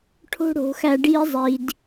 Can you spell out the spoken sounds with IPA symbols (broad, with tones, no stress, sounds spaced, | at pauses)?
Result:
ʈʰ o̤˦ ɽ o̤˨˦ x æ˧ ɖ i˧ zˤ i˨ d